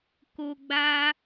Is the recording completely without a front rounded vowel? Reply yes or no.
yes